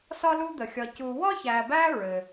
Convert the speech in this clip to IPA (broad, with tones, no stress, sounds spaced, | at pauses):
s ɒ˦ l u˦ d̪ ə˩ xʲ ɒ˨ c u˨ w ɒ˥ ç æ˨ b æ˥ ɹ ɘ˩